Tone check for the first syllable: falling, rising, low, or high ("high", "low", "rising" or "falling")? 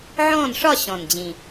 falling